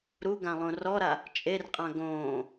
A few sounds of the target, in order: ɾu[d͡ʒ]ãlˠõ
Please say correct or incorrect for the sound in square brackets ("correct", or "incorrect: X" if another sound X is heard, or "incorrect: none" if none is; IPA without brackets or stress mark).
incorrect: ɡ